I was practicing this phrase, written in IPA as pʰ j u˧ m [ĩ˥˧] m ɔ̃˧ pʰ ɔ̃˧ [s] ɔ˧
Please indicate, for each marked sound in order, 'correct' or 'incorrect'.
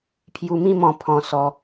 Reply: incorrect, correct

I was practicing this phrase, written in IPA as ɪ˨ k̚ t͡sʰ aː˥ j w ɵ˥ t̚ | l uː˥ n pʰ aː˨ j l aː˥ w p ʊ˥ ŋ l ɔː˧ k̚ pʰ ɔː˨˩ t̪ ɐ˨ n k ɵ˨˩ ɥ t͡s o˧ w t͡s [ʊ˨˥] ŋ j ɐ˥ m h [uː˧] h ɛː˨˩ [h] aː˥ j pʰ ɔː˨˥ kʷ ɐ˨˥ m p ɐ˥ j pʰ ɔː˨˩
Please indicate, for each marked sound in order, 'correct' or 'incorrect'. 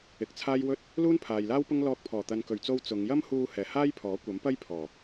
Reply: incorrect, correct, correct

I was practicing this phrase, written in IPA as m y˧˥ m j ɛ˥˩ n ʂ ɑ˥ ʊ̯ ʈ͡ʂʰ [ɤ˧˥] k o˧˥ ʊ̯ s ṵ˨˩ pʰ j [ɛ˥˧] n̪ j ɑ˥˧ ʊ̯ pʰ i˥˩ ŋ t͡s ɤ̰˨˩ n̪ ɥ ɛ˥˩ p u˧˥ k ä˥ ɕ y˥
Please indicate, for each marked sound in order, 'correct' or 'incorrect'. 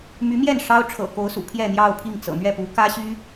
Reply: incorrect, correct

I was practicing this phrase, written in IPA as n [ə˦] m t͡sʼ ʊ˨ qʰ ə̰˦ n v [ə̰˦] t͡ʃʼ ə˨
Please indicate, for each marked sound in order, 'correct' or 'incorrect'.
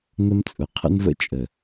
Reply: correct, correct

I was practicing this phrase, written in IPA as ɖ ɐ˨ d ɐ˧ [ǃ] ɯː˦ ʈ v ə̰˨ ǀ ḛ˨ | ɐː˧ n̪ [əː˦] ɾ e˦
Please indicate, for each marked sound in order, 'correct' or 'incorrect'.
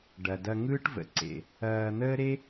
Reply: incorrect, correct

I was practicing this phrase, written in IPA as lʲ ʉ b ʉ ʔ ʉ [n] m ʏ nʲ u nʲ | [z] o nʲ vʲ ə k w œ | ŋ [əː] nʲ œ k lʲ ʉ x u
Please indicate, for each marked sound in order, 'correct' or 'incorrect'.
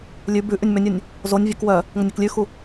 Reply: incorrect, correct, incorrect

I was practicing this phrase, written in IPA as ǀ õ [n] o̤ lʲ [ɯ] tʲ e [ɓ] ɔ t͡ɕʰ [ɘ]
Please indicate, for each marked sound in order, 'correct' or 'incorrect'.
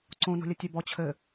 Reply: correct, incorrect, incorrect, correct

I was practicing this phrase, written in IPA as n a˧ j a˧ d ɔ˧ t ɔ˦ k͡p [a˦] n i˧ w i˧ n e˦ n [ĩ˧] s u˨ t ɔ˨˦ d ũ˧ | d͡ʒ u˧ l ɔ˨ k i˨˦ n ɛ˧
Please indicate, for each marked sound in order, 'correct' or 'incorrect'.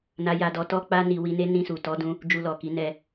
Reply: correct, correct

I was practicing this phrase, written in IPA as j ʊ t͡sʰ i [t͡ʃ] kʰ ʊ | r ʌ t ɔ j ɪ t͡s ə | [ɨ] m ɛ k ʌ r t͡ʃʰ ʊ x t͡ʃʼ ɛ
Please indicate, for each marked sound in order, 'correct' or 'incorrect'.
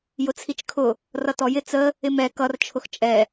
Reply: correct, incorrect

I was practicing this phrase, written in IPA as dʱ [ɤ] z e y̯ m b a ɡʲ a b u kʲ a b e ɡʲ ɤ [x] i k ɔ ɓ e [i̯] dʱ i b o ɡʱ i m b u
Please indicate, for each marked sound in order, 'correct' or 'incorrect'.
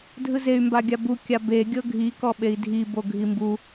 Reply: incorrect, incorrect, correct

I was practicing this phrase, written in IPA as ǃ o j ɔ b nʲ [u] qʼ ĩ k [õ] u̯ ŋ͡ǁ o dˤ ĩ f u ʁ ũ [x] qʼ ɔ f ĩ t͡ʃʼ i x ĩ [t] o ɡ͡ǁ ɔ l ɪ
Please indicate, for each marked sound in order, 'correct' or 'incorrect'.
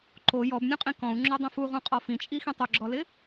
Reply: incorrect, incorrect, incorrect, incorrect

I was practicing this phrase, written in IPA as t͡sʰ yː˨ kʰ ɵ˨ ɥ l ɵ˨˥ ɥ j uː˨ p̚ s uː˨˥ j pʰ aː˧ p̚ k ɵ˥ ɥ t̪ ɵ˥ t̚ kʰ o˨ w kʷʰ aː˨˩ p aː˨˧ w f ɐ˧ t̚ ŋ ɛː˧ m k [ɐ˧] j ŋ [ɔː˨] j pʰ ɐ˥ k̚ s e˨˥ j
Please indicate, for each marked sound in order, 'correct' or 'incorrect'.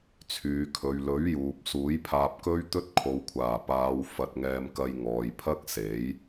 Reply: correct, correct

